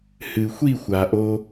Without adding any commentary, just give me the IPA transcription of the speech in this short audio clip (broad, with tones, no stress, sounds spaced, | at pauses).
h ɨ˩ xʷ i˥˩ xʷ a˩ ʔ o˧